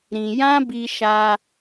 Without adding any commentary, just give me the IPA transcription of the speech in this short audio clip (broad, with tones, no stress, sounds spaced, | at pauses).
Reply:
ɾ ĩ˧ j ã˦ b i˧ ʃ a˧